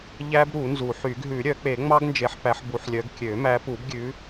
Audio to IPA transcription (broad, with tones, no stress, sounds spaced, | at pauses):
ʎ æ˦˥ b ɾ u˨˩˦ n z u˨˩˦ ħ y˨˩˦ ɡ ɦ ʉ˨˩˦ ɾʲ œ˨˩˦ k͡p e˨˩˦ ŋ͡m ɑ˦˥ ɡ n d͡ʒ e˨˦ ħ p æ˨˦ ħ b u˨˦ ħ lʲ œ˨˦ ɡ kʲ ø˨˩˦ m æ˨˦ p u˨˩˦ b ɡʲ ʉ˨˦